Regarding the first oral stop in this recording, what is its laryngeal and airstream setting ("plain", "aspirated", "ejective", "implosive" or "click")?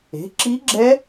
click